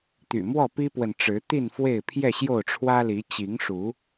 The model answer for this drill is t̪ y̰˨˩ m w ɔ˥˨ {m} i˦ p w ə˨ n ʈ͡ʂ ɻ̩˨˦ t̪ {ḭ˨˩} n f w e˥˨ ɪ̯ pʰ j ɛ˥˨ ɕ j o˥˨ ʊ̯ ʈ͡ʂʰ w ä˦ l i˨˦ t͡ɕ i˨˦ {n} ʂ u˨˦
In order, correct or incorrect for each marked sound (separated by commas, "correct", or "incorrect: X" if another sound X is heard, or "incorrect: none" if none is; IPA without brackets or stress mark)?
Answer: incorrect: p, incorrect: i˥˨, incorrect: ŋ